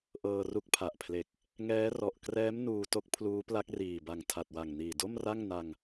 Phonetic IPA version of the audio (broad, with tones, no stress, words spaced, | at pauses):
ʔɤː˧ru˦˥k̚pʰa˨˩ʔpʰle˨˩k̚ | ŋɛː˦˥rɔ˨˩ʔkrɛː˦˥m nuː˧to˦˥k̚ pʰluː˦˥pla˦˥k̚riː˨˩ba˨˩ŋ tʰa˨˩t̚wa˨˩ŋniː˨˩ do˥˩mra˥˩ŋna˧ŋ